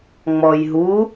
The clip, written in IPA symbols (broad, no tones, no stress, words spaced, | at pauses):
ŋ͡mɔjɦu